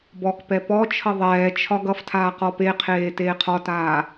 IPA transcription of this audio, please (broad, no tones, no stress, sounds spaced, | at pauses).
b ɔ k p ɛ p ɔ t͡ʃʰ ʌ ðˤ ɛː t͡ʃʰ ɒ ɡ ʌ f tʰ aː q ɔ p e qʰ eː t eː qʰ ɒ t aː